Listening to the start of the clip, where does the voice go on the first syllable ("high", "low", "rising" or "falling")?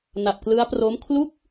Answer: low